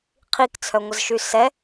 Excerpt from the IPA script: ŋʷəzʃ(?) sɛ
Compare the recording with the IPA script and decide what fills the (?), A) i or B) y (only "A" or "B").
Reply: B